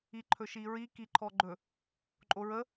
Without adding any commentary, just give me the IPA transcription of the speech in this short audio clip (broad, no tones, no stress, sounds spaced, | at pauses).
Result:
i ǃʰ ɵ ʃ i ɹ i k i ǃʰ ɔ ɡ͡ǃ ɵ | ǃʼ o ɹ ə